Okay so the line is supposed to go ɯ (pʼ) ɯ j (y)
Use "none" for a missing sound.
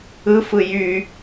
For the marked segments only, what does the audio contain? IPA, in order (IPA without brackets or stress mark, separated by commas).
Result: f, y